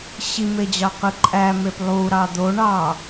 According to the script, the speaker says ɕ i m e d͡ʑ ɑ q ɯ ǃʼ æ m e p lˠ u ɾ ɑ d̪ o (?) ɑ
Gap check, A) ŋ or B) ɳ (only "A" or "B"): B